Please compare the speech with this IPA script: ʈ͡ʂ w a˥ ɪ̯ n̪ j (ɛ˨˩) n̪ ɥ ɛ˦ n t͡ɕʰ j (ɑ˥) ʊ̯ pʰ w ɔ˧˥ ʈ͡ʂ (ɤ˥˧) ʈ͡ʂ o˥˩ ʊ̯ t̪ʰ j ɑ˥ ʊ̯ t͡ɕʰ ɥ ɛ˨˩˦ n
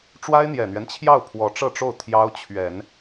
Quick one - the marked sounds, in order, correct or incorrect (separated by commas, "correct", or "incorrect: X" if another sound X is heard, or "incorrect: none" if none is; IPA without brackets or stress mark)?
correct, incorrect: ɑ˥˩, correct